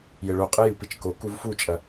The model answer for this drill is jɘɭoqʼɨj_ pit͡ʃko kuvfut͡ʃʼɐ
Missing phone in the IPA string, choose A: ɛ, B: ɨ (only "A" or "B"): B